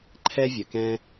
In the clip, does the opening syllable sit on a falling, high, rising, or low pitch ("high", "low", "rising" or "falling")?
high